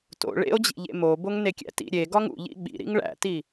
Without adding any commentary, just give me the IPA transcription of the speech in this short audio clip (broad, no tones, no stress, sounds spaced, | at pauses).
t o̰ ɭ ḛ o̯ d͡ʑ ḭ ʎ ḛ m o b o ŋ n e kʲ æ̰ t ḭ ɾʲ e ɡ ɒ ŋ ṵ ʎ ḭ ɓ ḭ ɾ ḭ ŋ ɭ æ̰ t i